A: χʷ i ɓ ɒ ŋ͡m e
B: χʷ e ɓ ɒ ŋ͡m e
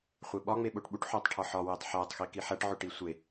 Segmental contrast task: B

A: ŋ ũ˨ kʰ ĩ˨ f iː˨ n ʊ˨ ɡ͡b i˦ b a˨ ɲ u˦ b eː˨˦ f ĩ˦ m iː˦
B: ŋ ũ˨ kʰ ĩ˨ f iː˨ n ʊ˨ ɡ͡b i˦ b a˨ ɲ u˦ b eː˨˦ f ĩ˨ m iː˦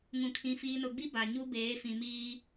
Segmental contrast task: B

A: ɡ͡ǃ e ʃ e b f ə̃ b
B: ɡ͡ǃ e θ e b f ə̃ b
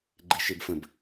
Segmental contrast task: A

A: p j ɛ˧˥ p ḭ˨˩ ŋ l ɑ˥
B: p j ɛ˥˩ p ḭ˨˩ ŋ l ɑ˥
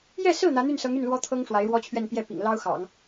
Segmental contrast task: B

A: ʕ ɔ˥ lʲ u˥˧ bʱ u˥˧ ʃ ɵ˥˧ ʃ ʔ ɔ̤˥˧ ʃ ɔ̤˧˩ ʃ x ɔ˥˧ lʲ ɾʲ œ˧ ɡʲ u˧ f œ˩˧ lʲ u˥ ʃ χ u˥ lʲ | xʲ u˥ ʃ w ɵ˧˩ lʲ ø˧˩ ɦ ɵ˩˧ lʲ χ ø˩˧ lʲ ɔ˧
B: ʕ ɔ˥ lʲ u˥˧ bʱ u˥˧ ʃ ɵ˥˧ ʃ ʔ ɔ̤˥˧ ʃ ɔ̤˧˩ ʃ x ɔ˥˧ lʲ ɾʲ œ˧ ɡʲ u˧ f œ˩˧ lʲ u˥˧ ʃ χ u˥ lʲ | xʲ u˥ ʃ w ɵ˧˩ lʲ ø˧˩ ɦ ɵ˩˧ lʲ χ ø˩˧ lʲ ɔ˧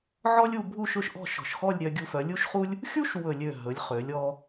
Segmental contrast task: A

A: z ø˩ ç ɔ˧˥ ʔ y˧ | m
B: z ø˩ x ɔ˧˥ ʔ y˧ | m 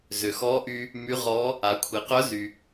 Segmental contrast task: B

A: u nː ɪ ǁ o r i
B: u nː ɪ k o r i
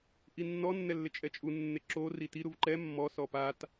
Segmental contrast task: A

